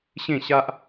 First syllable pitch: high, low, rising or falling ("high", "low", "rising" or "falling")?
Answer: falling